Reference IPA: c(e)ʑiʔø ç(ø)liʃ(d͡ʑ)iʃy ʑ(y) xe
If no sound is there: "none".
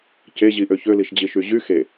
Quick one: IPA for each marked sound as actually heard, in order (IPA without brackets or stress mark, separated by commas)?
e, ø, d͡ʑ, y